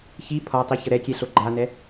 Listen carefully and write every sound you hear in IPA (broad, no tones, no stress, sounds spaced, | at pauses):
ç i pʰ ɒ tˤ i ç ə ɾ ɛ kʲ ɛ ɬ o ɡ͡ǃ a n ɛ